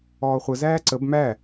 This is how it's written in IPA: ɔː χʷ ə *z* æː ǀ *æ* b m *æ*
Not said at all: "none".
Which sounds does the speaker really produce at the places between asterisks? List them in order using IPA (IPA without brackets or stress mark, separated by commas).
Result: z, ə, æ